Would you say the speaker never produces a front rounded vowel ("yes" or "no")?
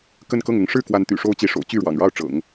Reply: no